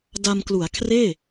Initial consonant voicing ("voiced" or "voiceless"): voiced